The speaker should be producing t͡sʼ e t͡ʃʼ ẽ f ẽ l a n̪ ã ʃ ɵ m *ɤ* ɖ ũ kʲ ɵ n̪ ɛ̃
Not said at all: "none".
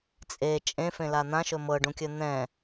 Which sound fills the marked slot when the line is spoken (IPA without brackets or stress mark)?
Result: ɤ